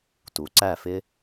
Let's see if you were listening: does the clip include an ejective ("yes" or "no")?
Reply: no